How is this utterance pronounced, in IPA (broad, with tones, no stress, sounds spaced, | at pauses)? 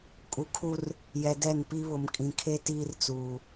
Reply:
kʼ u˨ kʰ u˦ r | j ɛ˨ d ɛ˦˨ n p i˦ β ʊ˨ m kʼ ĩ˨ kʰ e˦ t iː˦ r t͡s uː˨